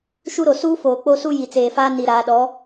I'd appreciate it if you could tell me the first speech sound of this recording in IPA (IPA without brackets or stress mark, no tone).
ʃ